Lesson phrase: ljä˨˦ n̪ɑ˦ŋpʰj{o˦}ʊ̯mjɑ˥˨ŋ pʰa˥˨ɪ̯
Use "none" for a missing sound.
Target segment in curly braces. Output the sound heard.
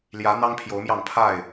o˨˦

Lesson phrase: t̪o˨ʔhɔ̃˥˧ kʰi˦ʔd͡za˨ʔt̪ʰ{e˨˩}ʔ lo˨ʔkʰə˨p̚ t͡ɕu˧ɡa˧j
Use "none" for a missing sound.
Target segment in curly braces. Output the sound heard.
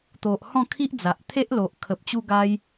e˦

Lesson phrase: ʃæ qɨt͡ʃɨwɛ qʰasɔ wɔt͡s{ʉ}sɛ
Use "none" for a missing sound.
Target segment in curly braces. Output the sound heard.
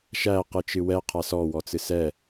ɨ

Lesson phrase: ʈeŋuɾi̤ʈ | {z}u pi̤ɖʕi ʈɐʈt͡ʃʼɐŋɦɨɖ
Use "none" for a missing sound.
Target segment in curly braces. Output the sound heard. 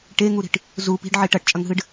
z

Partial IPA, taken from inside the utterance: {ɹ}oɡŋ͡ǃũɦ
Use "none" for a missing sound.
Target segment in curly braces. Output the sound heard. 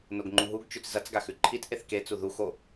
n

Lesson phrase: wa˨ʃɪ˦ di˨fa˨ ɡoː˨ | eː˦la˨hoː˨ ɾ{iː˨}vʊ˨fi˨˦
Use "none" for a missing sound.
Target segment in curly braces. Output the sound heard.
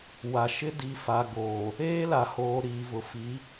iː˨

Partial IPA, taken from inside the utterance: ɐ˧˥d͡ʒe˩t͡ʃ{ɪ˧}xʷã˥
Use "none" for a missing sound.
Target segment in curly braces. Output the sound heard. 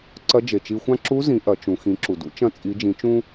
i˧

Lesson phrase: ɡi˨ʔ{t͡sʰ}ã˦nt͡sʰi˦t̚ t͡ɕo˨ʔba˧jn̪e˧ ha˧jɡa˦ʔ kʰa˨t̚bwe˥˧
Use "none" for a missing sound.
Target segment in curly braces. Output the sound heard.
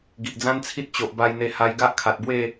d͡z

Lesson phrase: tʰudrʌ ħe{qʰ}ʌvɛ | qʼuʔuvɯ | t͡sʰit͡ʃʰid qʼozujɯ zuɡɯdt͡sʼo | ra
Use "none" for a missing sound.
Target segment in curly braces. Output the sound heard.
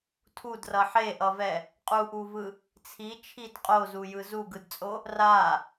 ʔ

